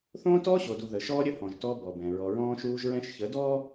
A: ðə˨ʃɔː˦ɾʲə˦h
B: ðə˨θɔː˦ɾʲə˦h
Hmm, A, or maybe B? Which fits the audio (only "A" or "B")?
A